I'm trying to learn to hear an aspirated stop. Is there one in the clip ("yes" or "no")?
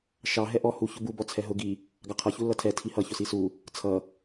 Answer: yes